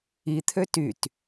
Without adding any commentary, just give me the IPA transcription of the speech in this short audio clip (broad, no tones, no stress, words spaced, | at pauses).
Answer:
it̪ʰø tyt